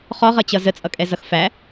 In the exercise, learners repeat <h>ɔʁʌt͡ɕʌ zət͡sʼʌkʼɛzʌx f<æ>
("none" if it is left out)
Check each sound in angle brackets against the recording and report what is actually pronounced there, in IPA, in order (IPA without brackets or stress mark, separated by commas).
χ, æ